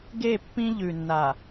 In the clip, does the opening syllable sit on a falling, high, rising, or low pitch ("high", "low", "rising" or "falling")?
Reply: falling